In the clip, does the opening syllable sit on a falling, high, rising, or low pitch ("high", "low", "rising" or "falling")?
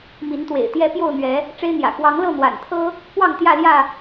rising